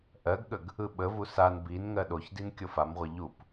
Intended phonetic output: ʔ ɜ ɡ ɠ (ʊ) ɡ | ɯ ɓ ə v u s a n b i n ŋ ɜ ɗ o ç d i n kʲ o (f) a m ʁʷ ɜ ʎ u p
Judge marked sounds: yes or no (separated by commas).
no, yes